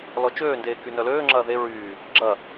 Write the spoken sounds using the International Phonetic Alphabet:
l ɔ t͡ʃ øː n d eː k y n œ l øː ŋ͡ǁ ɐː ð e ɹ yː | ɡ͡ǁ ɐ

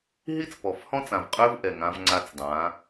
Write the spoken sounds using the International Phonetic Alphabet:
ɦ i˦ t͡s p ɔ˨ f h ɔ̃˦ t͡s ã˨ v qʼ ø˦ v ʔ ɛ˨ ŋ ã˦ v ŋ͡ǀ a˦ t͡s dˤ ã˨˦

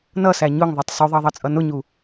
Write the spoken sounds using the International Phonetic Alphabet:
n ʌ s æ ɲ ʊ ŋ ðˤ ʌ tˤ s u ðˤ ɑ ðˤ ɑ t͡sʼ ʌ n ʊ ɲ u

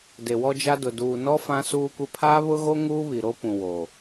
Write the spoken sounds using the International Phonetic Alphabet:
d e˨ w ɔ˦ d͡ʒ a˦ d ʊ˨ d uː˨ n ɔ˦ f ã˦ s uː˦ kʷ ɪ˦ pʰ aː˦ β ʊ˦ ɣ o˦ ŋ uː˦ β i˨ ɾ o˦ p ũ˨ w oː˨

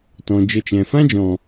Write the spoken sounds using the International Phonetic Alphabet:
t ɔ̃˨ d͡ʒ ə˧ t͡ʃ ɛ̃˨ f ã˦ d͡ʒ ɔ̃˨

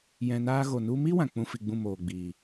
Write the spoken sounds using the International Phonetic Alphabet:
j ɛ̃˧ n aː˦ ɣ o˨ n u˧ m i˦ w ã˨ k͡p ũ˦ f i˧ ɡ͡b ũ˦˨ m oː˨ ɡ͡b iː˨

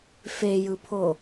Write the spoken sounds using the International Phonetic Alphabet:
f e j ɯ pʰ o

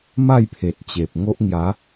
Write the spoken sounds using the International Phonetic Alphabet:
m a˥˧ j pʰ e˨ t̚ t͡ɕ e˨ p̚ ŋ o˦ ʔ ŋ j a˨˦

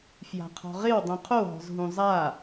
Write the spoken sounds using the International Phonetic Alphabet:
f j a̤ qʰ ɔ̤ ʁ ɪ w dˤ ũ qʰ o ɦ ɔ̤ z ɦ ũ zˤ a

